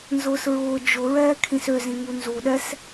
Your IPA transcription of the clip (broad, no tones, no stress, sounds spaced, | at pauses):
n z ʊː s ɹ ʊː d͡ʒ ʊ ɹ ɛː kʰ ĩ s ø z ĩ ŋ u n z u ɗ ɛ s